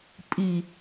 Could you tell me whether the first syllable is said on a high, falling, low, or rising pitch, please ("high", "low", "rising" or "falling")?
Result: low